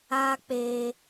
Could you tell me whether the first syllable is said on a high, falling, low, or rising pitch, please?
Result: high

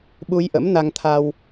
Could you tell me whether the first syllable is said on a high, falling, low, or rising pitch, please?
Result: rising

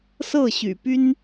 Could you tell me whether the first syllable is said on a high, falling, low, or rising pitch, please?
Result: falling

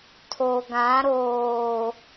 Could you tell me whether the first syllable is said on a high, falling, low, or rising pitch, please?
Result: low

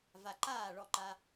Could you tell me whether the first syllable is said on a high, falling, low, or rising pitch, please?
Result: low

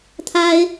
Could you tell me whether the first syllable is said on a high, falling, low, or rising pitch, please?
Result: high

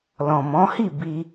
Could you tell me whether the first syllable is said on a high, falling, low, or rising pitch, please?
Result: low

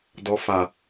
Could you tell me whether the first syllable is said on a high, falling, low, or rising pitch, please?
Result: low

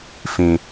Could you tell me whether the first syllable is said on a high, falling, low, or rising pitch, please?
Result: high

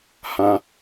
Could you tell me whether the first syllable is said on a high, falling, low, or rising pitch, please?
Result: high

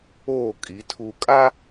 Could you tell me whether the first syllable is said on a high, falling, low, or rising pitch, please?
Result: falling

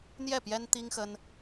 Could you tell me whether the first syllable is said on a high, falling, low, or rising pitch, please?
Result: falling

